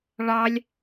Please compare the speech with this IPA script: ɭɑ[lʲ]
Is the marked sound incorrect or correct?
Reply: correct